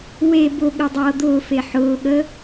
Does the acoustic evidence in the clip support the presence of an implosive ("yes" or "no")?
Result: yes